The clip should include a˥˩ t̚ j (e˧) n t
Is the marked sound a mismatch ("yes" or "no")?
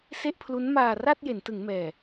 yes